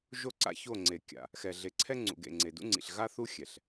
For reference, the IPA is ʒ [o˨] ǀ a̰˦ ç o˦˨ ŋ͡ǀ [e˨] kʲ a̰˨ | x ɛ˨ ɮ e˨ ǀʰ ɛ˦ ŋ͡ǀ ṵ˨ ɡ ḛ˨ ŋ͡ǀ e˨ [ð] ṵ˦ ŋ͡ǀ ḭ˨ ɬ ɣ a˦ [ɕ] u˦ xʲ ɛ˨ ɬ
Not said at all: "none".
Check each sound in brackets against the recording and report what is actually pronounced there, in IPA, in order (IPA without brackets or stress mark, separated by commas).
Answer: o˦, e˨, d, θ